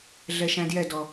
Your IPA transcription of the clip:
ɮ ɛ ʃ æ̃ d j ɛ d ɔ

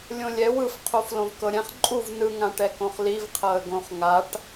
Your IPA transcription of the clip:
lʲ õ lʲ ɛ w ɯ f qʰ o f l õ v k ɤ ɾʲ ɛ̃ χ ǃʼ u v n ɯ ŋ ã ʈ ɛ k õ χ l i v qʰ ɤ ə̯ ɡ õ χ ŋ a ʈ

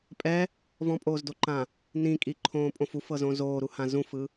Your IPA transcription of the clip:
pʼ ɛ | v ɔ̃ pʼ oː z d o ǃ ã | n ĩ kʼ i ǃʰ õː pʼ õ f u f ɤ z õ z oː ɾ u h ã z ũ f ɯ

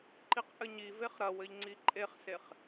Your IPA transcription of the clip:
ǃ i q ʔ ɘ ɲ i v e χ ɾ ɐ w ɘ ʎ ŋ͡ǀ i ǃʼ e χ s e χ

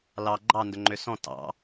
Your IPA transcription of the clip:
l ɑ ɡ͡ǃ ɑ n d ɵ ŋ͡ǃ ø s ɔ̃ t ɑ̰

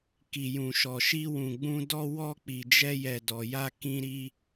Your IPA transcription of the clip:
k i˨ j ũ˨ ʃ ɔ˨ ʃ i˧ w ũ˨ ɡ͡b ũ˧ d ɔ˧ w ɔ˧ k͡p i˨ d͡ʒ ɛ˧ j ɛ˨ d ɔ˨ j a˧ k ĩ˧ ɾ i˧

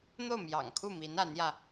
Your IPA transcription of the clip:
n̪ o˥˩ ʊ̯ m j ɑ̰˨˩ ŋ kʰ u˥˩ m i˧˥ n a˧˥ n j ä˧

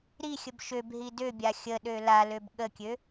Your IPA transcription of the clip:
ɾ i xʲ ə b ʃ ø b ɦ i d ø bʲ a xʲ ə ɗ ø l a l ø b ɠ ə kʲ ø

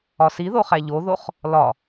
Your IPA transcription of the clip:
ɒ s i ð o χ æ ʎ o ð o χ | l ɒ

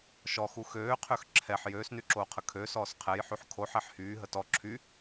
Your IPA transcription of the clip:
ʃ ɔ x u x øː qʰ ø x ǁʰ ɛ ħ j øː s n y ǁ oː qʰ ə kʰ ø s ɔː s qʰ ɛ j ħ y ħ kʰ o ħ ɛ ħ h yː ɦ ə t ɔ ǁʰ y

